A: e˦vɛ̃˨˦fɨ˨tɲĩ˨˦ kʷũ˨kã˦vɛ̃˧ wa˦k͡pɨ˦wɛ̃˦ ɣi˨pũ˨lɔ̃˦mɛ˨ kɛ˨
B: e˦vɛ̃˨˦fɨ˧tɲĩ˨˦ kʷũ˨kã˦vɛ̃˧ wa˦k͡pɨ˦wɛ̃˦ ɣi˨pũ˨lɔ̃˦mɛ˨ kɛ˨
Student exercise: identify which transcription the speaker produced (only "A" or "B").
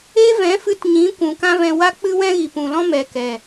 B